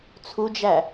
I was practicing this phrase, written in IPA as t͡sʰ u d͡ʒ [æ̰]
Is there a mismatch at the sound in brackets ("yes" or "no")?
yes